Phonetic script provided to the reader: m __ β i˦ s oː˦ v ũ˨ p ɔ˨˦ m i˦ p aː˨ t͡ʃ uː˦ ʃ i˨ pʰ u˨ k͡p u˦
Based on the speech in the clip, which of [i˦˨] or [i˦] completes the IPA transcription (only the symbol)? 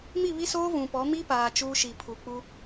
i˦˨